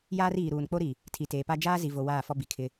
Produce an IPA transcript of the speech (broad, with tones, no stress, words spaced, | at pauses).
jaː˦riː˨ɾuː˨n k͡po˦ɾi˨ | tʰi˨teː˨pa˦ d͡ʒaː˦zi˨vo˨ waː˦˨fɔ˦bi˨ kʰɪ˦